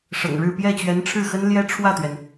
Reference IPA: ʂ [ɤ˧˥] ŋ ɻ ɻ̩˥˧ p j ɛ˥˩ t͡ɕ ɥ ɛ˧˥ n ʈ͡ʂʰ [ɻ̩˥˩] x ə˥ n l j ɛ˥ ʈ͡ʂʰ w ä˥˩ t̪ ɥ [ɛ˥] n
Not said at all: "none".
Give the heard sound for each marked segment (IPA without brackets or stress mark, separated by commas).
ɤ̰˨˩, ɻ̩˥˩, ɛ˩